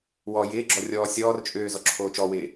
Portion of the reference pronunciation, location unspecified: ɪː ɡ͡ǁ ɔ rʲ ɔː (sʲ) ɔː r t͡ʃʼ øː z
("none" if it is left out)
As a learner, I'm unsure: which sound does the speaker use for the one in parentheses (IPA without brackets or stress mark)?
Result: sʲ